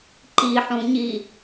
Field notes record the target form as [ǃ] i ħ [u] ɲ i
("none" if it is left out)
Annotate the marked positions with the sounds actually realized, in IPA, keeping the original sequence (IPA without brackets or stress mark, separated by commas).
ǃ, ũ